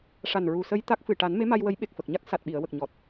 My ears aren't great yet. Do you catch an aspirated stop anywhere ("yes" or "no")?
no